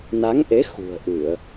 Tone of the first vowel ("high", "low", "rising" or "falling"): rising